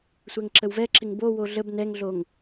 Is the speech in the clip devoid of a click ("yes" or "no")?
no